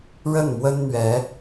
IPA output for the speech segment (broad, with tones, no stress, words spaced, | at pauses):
ɻə˥˩nmwə˥n n̪ɥɛ˧˥